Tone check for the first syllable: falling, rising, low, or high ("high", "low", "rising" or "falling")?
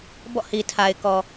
falling